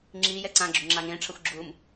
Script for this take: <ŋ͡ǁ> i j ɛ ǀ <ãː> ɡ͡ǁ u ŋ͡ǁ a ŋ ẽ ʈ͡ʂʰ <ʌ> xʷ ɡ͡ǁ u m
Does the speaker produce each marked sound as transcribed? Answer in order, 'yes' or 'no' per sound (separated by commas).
yes, no, yes